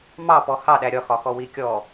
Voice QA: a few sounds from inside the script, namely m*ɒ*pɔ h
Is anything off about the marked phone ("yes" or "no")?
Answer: yes